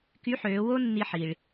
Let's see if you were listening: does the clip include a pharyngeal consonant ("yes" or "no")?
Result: yes